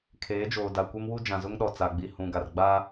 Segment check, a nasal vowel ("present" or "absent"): present